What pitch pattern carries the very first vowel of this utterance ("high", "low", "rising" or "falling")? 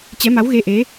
rising